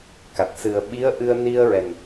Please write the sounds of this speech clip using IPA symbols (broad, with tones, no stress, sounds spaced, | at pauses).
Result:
k a˨˩ t̚ s ɨ˨˩ ə̯ ɓ i˧˥ ə̯ ʔ ɨ˧ ə̯ n i˧ ə̯ ɹ ɛ˨˩ n